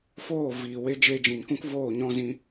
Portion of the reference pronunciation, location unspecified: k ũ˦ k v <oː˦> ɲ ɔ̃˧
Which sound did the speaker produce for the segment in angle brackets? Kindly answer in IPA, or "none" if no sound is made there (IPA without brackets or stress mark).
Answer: oː˦˨